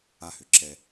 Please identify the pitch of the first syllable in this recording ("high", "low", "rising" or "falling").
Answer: high